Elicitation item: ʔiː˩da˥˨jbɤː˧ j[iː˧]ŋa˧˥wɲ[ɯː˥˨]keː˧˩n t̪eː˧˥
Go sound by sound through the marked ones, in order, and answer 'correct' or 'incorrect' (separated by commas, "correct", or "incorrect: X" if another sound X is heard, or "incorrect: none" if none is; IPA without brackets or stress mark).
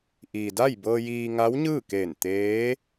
correct, correct